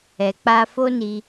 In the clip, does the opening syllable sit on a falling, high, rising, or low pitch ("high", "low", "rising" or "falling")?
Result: low